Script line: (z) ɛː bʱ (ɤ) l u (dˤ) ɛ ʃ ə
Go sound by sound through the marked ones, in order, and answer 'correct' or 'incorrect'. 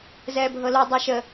correct, correct, correct

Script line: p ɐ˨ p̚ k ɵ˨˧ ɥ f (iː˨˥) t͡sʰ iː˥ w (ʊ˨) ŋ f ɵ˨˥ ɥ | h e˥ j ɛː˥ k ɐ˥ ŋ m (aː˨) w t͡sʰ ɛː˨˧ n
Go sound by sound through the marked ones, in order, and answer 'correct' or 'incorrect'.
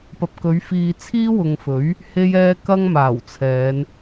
incorrect, correct, incorrect

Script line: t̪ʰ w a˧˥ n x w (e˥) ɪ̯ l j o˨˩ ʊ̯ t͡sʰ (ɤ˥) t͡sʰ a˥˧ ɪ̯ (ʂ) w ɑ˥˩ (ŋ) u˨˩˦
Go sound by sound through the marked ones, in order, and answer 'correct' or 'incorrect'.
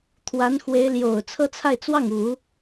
incorrect, correct, incorrect, correct

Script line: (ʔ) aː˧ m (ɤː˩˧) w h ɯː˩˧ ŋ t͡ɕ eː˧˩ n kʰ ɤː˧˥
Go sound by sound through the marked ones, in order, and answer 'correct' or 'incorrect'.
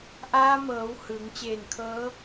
correct, correct

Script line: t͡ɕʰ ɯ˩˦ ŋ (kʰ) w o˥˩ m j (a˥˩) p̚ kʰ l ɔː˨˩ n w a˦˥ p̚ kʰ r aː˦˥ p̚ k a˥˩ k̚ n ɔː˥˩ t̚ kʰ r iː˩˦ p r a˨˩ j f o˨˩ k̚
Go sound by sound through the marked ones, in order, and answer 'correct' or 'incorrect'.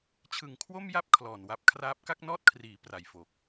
correct, correct

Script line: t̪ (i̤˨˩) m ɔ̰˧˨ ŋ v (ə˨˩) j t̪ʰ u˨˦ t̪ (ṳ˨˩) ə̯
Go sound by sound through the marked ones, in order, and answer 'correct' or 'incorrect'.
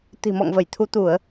correct, incorrect, incorrect

